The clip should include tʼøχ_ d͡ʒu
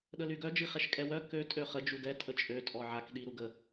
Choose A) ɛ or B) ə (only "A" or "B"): B